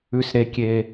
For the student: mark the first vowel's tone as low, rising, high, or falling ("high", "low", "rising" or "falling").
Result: low